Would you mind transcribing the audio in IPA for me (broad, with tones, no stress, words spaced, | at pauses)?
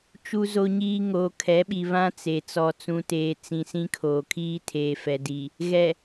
t͡ʃu˨zo˨ɲiː˨ ŋoː˨kʰɛ˨˦ɓi˨ βã˦t͡se˨ t͡sɔ˨t͡sũ˨teː˨ t͡sĩ˨sĩ˦kʰoː˨ kʰiː˦tʰeː˨fɛ˨di˨ | ɣɛ˨